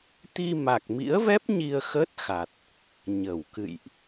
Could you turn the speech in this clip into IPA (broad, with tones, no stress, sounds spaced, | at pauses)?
t̪ i˧ m a˨˩ k̚ m ḭ˧˥ ə̯ v ɛ˦˥ p̚ ɲ i˧ ə̯ x ə˦˥ t̚ x a˨˩ t̚ | ɲ ə˧˩ w k ɨ̰˧˨ j ʔ